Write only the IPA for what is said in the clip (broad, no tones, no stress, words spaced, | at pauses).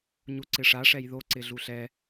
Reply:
ɲuǀɪʂa ʂɛjðo ǀɪɮuɬɛ